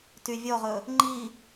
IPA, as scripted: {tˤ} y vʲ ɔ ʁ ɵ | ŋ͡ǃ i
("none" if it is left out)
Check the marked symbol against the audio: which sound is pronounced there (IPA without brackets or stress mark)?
t